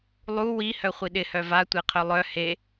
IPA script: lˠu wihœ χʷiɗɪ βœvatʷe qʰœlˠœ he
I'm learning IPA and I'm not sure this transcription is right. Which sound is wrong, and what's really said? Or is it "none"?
β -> h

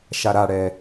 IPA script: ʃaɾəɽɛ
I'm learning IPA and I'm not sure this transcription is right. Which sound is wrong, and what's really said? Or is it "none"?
ə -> a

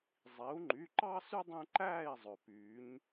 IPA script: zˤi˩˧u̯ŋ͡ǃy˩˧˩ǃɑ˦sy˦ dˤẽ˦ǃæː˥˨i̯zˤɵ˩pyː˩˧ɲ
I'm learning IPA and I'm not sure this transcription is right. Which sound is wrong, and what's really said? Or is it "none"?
none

